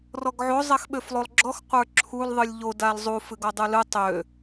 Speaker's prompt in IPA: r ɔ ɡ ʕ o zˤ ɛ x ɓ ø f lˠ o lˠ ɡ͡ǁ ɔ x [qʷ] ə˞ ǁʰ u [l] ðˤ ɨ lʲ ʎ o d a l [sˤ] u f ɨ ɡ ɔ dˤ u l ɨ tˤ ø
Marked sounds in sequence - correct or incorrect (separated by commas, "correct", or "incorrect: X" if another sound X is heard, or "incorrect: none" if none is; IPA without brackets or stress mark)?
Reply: correct, correct, incorrect: zˤ